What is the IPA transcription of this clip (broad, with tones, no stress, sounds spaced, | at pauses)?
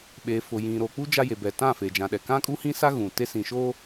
ɓ eː˨ f ʊ˨ j ĩ˨ ɾ o˨ k͡p u˦ d͡ʒ a˦ j e˨ b ɛ˨ t ã˦˨ f eː˨ d͡ʒ ã˨ ɗ ɛ˨ k ã˦ kʼ u˦ h ĩ˦ s a˦ ɣ ũ˨ t e˦ s ĩ˨ ʃ oː˦